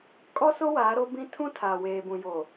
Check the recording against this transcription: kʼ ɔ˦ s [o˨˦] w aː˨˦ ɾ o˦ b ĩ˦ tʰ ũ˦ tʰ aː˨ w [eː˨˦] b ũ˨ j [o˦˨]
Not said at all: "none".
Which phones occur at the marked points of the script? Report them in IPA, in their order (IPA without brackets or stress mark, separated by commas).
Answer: o˦, eː˨, o˨